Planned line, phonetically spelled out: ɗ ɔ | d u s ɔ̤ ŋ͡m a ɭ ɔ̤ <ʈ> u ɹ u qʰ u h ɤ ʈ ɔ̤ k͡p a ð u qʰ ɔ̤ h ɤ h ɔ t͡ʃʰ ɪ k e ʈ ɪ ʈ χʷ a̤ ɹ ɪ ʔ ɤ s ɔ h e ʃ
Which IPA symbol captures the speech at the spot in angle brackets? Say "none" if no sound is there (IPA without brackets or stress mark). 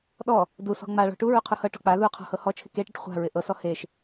ʈ